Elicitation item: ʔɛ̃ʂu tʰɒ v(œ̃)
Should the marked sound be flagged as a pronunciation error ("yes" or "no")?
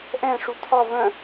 no